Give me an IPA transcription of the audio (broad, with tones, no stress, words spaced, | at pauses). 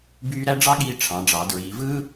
byː˥ ɾæ˥ɖ͡ʐɑ˥ɠiː˧ ʈ͡ʂʰɑ̃˩˧ɖ͡ʐɑ˩˧ dɹiː˩˧vɯː˥